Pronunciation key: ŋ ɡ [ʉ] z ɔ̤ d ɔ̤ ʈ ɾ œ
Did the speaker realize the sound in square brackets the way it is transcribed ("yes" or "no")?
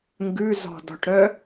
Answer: yes